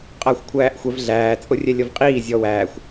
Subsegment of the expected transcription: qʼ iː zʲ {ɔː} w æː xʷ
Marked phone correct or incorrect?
incorrect